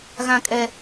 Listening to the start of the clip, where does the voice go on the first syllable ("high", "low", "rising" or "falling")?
high